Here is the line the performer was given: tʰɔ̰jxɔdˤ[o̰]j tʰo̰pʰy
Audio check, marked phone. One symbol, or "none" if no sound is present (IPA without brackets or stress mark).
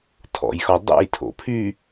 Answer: ṵ